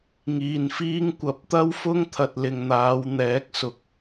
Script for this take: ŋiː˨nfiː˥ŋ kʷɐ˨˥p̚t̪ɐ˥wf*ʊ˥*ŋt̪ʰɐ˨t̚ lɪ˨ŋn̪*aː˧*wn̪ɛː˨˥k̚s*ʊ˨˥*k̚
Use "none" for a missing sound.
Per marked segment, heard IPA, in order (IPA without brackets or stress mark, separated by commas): ʊ˥, aː˨˧, ʊ˨˥